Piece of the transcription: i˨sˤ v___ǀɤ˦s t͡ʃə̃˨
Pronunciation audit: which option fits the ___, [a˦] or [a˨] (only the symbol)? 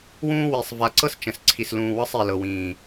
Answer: a˨